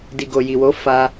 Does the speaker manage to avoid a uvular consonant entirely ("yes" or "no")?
yes